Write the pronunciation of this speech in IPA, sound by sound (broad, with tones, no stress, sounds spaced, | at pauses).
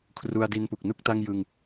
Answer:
kʰ r u˧ a̯ d i˧ n p u˨˩ k̚ n u˥˩ k̚ t a˥˩ ŋ j ɯ˧ ŋ